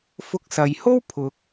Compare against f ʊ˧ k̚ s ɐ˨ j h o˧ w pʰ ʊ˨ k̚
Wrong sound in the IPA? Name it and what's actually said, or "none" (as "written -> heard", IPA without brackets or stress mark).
o˧ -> o˥